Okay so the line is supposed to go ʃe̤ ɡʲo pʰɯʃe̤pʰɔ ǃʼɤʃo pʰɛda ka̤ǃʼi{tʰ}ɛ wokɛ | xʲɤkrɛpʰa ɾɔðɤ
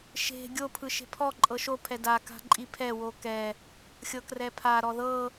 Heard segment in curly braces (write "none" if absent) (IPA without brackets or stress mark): pʰ